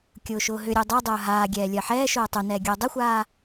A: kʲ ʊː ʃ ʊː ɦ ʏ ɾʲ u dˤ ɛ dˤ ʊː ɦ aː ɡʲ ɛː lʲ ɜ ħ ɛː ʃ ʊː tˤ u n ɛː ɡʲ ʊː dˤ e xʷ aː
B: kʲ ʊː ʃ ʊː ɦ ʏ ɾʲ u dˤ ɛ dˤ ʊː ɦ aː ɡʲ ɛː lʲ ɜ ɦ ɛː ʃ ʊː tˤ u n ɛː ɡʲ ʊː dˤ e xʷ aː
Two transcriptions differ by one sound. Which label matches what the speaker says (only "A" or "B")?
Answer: A